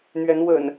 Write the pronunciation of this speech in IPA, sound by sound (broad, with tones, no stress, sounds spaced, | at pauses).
n̪ ɥ ɛ˨˦ n w ə̰˨˩ n